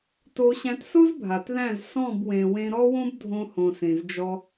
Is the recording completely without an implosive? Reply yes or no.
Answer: yes